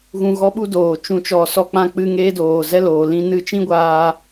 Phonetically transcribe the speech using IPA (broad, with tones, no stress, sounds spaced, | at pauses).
ɣ ũ˧ ɣ ɔ˦ ɓ u˦ d oː˨ t͡ʃ ũ˨ t͡ʃ ɔ˨ s ɔ˧ k͡p ã˧ k͡p ɨ˧ ŋ eː˦ d oː˨ z ɛ˦ l oː˨ l ĩ˧ n ɨ˧ t͡ʃ ĩ˦ ɡʷ aː˧